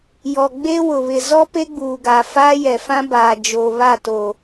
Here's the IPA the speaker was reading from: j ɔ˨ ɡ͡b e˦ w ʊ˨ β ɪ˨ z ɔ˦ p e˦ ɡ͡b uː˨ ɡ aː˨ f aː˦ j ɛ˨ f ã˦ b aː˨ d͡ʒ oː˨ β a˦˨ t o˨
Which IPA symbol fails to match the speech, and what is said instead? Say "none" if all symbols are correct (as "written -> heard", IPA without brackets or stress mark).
none